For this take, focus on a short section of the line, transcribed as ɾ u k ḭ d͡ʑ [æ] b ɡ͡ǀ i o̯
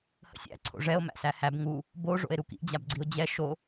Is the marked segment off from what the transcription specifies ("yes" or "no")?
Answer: yes